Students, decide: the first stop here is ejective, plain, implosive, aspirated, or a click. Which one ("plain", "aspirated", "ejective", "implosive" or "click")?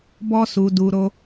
plain